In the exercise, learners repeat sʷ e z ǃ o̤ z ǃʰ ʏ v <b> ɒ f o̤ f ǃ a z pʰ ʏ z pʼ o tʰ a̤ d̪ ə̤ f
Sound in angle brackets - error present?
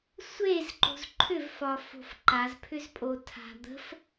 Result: yes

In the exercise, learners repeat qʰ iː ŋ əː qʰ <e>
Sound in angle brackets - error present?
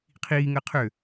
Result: yes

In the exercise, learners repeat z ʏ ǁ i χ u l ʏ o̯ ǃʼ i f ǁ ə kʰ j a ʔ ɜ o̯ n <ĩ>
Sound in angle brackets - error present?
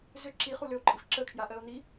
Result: yes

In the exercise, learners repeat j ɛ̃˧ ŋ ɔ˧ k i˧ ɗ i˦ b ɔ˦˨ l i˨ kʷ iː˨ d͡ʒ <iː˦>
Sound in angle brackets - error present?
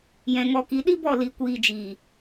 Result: yes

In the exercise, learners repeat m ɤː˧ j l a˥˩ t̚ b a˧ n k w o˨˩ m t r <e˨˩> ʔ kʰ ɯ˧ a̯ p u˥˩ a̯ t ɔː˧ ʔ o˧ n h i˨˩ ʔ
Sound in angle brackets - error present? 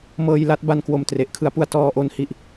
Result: no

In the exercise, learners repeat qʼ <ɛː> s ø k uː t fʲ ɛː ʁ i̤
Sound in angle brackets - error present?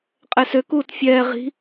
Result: yes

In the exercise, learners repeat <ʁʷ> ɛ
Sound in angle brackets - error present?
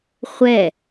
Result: yes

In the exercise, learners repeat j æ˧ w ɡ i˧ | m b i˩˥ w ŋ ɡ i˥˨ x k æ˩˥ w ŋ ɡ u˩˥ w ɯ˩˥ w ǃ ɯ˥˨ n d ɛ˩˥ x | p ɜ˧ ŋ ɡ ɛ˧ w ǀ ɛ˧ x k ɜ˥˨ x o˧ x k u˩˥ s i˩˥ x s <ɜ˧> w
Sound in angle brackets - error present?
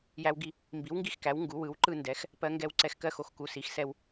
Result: yes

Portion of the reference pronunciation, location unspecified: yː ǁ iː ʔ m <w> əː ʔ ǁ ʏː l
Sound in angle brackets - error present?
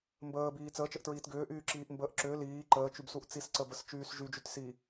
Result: yes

